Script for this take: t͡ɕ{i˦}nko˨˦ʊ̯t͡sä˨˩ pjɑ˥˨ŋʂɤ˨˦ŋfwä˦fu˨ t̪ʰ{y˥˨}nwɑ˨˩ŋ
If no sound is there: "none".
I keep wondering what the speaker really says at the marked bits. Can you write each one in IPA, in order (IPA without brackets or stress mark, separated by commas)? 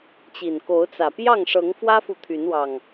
i˨˩, y˨˦